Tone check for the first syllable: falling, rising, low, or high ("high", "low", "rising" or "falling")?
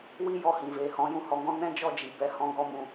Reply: high